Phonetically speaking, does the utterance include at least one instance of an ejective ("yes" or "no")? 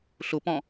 no